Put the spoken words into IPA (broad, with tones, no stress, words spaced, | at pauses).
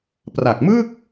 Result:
pra˨˩k̚mɯ˥˩k̚